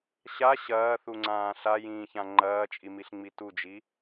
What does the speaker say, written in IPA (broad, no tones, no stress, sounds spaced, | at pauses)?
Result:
ɕ a ɕ ɐː θ u ŋ͡ǀ ãː ɬ a j ĩː ç ã ŋ͡ǃ ɐː t͡ʃʼ i m i ɬ ŋ͡m i t u d͡ʒ i